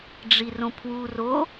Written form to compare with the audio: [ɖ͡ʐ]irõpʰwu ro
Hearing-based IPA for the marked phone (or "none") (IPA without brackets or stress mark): ɖ͡ʐ